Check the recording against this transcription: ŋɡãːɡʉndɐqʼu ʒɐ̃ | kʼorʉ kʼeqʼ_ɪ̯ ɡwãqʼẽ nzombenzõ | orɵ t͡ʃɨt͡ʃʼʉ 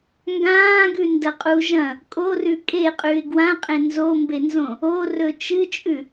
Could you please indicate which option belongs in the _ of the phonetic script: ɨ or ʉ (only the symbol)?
ʉ